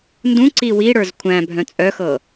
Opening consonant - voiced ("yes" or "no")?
yes